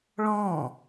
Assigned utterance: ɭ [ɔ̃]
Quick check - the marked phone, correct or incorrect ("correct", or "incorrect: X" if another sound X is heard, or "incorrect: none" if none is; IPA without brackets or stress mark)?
correct